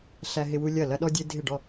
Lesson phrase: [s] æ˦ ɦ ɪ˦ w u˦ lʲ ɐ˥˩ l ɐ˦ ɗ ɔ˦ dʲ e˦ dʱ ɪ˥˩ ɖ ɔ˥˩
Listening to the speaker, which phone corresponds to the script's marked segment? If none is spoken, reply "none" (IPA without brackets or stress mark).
ɬ